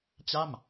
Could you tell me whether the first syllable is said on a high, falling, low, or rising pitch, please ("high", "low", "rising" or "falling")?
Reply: falling